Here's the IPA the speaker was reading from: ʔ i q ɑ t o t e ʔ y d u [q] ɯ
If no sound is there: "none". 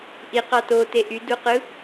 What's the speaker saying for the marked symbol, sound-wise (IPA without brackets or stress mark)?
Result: q